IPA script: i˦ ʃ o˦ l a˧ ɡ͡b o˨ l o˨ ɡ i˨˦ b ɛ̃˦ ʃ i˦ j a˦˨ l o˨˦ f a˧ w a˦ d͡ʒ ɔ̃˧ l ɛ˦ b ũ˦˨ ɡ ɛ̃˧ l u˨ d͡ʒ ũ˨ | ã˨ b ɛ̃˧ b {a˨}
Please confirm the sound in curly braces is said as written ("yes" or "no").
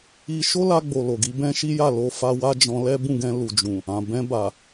yes